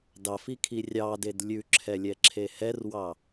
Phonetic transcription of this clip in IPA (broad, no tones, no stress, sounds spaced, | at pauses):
d ɑ f i kʰ i rʲ ɑ d e d lʲ ʉ ǁʰ ɛ lʲ ɛ ǁʰ e h ɛ r w ɑ